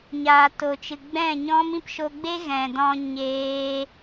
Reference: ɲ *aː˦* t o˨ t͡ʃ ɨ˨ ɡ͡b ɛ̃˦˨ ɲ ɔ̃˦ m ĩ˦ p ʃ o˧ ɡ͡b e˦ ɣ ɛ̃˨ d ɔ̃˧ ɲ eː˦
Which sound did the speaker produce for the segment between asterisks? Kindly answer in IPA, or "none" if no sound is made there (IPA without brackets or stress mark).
aː˨